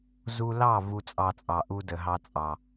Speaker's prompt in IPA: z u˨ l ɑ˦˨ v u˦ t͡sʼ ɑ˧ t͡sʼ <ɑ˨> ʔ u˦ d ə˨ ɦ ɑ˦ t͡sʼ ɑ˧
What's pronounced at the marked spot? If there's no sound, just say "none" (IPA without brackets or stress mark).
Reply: ɑ˨